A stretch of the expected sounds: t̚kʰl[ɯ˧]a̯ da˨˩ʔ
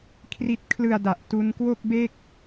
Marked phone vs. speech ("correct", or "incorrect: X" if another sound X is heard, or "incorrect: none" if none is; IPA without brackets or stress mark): incorrect: ɯ˨˩